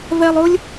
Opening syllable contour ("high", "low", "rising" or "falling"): high